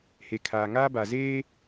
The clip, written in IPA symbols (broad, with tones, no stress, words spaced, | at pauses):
he˨kʰaː˨ŋaː˦ ba˨zeː˦